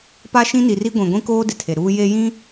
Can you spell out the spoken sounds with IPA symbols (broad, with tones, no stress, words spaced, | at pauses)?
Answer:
pa˦ʃĩ˦ni˨ri˦ ɡʷĩ˨ɡʷĩ˦koː˦ dɪ˨tʰe˨ ɾuː˦ je˦jĩ˦